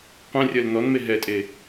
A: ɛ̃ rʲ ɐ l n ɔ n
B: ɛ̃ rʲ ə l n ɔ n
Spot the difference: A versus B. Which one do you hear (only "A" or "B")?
A